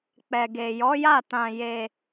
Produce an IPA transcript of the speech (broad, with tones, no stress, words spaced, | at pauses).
k͡pɛ˨ɡe˨jɔ˨˦ja˦˨ tã˧ je˧